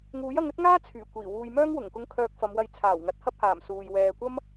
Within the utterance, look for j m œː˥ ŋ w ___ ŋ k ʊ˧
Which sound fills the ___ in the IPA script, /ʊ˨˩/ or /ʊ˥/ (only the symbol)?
ʊ˨˩